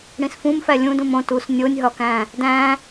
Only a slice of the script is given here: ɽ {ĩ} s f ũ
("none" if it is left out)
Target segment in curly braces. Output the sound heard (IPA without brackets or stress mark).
ĩ